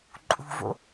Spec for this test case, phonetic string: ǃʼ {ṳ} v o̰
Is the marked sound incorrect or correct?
correct